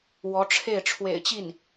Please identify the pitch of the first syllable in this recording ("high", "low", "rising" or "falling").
rising